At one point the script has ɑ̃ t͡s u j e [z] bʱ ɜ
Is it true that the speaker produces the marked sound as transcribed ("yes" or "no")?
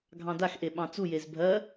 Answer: yes